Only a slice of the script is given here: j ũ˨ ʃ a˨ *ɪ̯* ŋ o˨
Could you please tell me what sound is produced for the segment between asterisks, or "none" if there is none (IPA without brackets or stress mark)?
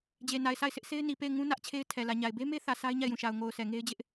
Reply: ʊ̯